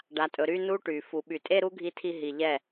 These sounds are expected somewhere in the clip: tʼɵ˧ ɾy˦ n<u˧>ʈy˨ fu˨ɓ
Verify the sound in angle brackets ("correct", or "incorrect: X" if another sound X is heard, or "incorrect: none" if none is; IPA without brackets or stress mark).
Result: incorrect: u˦